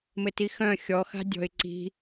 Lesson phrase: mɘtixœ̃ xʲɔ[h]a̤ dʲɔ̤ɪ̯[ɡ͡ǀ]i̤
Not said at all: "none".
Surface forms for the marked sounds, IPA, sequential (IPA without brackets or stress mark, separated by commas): x, ǀ